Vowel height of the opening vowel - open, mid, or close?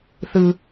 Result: close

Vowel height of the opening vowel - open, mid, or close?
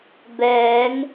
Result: mid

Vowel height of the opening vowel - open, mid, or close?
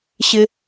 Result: close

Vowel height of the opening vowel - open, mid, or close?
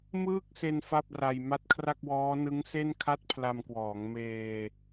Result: close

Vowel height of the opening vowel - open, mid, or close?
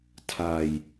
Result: open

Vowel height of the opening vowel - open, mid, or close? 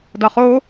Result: open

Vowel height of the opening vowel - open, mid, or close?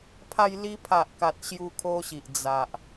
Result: open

